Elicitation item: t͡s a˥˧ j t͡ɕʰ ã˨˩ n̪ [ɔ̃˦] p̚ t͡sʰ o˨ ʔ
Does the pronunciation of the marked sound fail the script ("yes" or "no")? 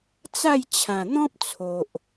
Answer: no